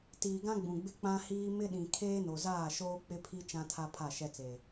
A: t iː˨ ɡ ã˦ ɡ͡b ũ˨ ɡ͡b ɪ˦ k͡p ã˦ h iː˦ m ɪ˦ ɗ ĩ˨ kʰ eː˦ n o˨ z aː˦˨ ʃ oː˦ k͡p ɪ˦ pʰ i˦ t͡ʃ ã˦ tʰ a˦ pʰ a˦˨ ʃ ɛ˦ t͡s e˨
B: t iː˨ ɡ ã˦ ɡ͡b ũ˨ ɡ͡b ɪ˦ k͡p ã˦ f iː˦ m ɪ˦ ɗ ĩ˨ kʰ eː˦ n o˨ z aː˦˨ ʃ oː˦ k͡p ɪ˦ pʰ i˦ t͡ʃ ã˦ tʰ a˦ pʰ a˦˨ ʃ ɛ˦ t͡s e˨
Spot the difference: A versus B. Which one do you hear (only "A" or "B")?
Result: A